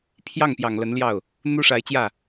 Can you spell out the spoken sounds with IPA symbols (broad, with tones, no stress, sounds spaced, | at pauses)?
pʰ j ɑ˥˩ ŋ p j ɑ˨˩ ŋ l ə˧˥ n l j ɑ˥˩ ʊ̯ | n̪ u˥ ʂ a˧˥ ɪ̯ t͡ɕ j ä˥˩